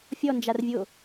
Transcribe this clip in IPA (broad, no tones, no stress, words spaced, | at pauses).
fʲɔnd͡ʒarvʲo